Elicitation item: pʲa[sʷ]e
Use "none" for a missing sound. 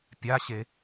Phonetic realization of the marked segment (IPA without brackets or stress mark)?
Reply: ɕ